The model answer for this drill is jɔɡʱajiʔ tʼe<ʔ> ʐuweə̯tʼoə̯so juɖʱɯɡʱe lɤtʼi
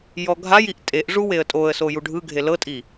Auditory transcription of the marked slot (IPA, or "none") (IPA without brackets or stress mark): ʔ